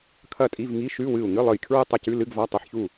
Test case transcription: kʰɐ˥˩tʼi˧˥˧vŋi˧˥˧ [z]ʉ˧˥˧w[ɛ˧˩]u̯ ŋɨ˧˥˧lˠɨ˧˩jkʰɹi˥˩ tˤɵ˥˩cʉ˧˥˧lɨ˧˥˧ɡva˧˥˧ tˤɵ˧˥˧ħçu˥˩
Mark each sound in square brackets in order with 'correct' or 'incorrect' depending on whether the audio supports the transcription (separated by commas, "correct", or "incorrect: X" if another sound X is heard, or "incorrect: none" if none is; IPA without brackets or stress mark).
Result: incorrect: ʃ, incorrect: ɨ˧˩